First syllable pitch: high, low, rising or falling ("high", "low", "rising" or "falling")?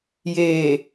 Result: low